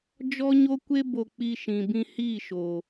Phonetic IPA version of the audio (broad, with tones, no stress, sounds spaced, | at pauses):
d͡ʒ ɔ˦ ɲ o˦ kʷ e˦ b o˧ k͡p i˧ ʃ ĩ˨ b ĩ˧ h iː˦˨ ʃ o˨